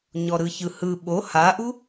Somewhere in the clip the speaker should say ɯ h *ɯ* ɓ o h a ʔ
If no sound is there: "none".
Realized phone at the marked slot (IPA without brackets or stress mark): ɯ